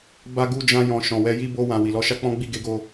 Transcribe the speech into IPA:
b a˧ ɡ u˧ d͡ʒ ã˧ j ɔ̃˨ ʃ ɔ̃˨ w ɛ˧ j i˦ b o˧ w ã˨ w i˨ l ɔ˨˦ ʃ a˦ k͡p ɔ̃˦ ɡ͡b i˦˨ ɡ e˨˦ ɡ o˧

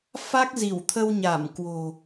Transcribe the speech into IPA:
f a˦˥ k̚ z i˧˩ w t̪ʰ ə˧ w ɲ a˧˩ m k w o̤˨˩

